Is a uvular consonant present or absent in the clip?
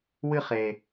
present